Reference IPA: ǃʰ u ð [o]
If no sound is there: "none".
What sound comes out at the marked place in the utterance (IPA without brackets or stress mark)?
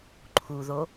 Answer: o